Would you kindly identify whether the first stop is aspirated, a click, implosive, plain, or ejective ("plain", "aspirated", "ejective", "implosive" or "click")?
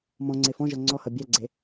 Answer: click